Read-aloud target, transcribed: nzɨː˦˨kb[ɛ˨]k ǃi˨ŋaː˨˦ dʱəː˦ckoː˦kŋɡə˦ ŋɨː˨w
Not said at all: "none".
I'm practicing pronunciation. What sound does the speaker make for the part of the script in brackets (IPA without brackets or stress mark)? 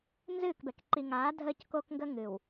ɛ˨